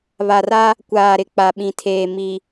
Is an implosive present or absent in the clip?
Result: present